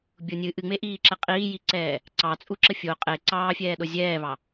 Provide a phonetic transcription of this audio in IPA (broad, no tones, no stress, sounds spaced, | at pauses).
bʲ o nʲ ɨ ʔ ɨ ŋ͡m e ʔ iː ǁ ɛ qʼ iː j i ǀ ɛː | ǀ ɑ t͡sʼ u ǁ ə fʲ o qʼ e ǀ ɑː fʲ ɛː ɗ o zʲ ɛː β ɑ